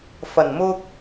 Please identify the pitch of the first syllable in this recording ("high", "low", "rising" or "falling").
low